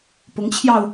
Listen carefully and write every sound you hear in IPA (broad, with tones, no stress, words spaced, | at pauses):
pʊ˧˥ŋt͡ɕʰjɑ˧ʊ̯